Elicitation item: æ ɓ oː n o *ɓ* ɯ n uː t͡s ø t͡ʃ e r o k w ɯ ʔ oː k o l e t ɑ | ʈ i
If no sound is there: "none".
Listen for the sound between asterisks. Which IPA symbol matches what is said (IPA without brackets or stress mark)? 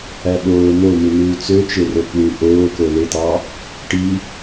m